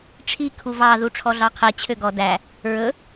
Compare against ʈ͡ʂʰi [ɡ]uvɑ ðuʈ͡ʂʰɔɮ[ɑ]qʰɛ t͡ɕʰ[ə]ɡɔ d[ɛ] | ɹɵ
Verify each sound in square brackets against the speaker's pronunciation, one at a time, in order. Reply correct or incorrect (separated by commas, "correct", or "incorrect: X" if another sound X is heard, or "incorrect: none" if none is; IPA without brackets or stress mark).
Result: incorrect: kʰ, correct, incorrect: ø, incorrect: æ